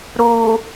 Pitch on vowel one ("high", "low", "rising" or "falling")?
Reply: low